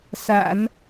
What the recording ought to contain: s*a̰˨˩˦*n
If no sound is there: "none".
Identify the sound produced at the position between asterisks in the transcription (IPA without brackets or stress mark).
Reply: a̰˨˩˦